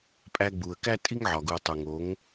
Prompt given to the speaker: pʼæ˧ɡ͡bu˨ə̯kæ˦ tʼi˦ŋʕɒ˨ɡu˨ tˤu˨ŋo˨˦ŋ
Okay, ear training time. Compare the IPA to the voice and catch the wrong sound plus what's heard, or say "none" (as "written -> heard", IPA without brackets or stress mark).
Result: none